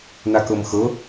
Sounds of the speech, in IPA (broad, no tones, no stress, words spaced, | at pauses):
nakɤmxɤ